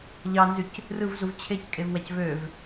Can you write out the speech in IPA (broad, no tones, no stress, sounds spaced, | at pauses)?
ʎ ɑ n z y c | r ɯ v z u v t͡ɕʰ e c kʼ e v w æ c v ø v